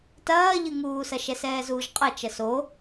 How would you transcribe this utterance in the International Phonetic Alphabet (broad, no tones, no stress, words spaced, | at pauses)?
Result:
tɐːʎɨŋuːsɐ ʃɛsɛːzuːʒqʼɐ t͡ʃɐso